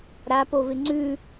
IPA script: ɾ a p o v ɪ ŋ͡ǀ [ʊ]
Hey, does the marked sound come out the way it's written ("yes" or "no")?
no